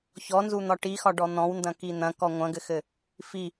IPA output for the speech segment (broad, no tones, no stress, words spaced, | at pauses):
çɔnzun̪ɒ ʈixɒɖɔ n̪ɔ̃wndɐ̃ki n̪ɐ̃kɔ ŋʷɐ̃ɡɘxɘ | fi